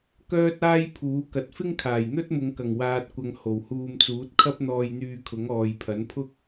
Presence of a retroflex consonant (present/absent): absent